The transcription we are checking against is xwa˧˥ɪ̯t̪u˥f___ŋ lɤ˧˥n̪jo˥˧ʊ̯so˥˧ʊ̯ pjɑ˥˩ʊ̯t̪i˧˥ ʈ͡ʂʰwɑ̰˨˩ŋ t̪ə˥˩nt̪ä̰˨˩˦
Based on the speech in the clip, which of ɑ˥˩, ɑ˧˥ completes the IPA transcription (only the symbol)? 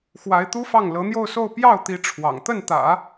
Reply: ɑ˥˩